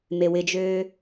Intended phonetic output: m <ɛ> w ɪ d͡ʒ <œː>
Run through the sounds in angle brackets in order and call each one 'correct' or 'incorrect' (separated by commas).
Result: incorrect, incorrect